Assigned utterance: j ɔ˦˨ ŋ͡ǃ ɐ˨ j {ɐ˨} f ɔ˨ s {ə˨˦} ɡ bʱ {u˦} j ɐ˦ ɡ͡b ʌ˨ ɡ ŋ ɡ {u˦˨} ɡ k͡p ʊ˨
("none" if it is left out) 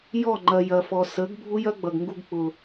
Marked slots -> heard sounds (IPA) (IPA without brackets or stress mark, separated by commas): ɐ˨, ə˨˦, u˦, u˧